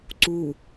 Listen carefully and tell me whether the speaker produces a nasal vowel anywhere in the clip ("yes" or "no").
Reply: no